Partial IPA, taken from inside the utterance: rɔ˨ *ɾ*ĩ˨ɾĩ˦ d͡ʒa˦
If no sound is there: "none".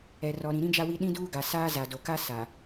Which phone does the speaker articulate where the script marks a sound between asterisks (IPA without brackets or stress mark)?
ɾ